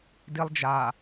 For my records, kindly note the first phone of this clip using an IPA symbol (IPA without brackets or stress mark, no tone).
d